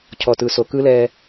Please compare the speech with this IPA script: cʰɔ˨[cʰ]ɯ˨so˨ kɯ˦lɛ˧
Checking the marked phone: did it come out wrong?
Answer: yes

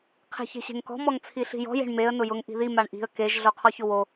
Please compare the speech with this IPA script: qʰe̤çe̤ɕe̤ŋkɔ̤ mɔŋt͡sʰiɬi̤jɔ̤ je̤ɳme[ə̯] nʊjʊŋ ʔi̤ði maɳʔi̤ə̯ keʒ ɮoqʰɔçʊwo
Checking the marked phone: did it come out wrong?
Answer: no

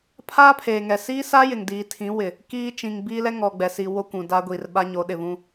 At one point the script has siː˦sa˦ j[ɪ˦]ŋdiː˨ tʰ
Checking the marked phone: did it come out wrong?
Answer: yes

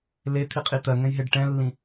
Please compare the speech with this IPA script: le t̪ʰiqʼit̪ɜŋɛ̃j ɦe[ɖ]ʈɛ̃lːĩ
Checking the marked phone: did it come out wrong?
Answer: no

